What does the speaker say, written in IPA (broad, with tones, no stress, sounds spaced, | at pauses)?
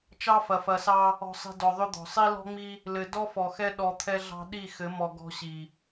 t͡ʃ ɑ˦ f ɐ˨ f ɐ˨ s ɑ˦ | ɔ̤˨ sˤ i̤˨ d ɔ˨ ðˤ ʏ˦ d̪ ɔ̤˨ sˤ i˦ l ɔ̤˦ ŋ͡m i˦ | l ɘ˨ d ɔ˦ f ɔ˨ x ɛ˦ ɗ ɔ˨ t̪ʰ ɛ˦ ɮ ɑ̤˦ ɗ i˦˨ x ɘ˨˦ m ɔ˨ ɡ ɔ̤˦ ɕ i˨